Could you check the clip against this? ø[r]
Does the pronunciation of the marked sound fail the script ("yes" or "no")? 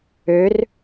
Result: no